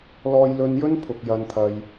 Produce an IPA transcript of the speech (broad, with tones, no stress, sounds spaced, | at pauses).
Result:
l ɔː˧ j l ɵ˧ n j ɵ˥ n pʰ ʊ˨ k̚ j ɐ˧ n t̪ʰ ɐ˧ j